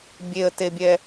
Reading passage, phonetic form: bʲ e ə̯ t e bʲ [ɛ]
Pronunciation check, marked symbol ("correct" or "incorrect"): correct